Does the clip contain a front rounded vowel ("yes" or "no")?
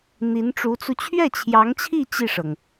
no